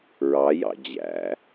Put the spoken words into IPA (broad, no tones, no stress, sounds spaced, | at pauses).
ɹ ɑ j ɑ̰ d͡ʑ æ̰